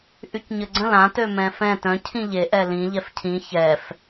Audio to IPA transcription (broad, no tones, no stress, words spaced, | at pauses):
ʔycɲəɡ͡ǀə̃l ã tømɛ̃fɛ̃ tœ̃ cʰĩʎe ʔɛlĩ ʎɛfcʰĩ çɛf